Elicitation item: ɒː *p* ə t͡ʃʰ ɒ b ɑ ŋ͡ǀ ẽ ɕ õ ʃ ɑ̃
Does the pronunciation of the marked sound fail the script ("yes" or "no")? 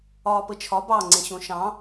no